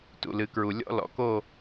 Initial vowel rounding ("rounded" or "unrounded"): rounded